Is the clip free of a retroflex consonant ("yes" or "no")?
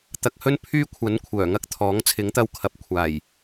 yes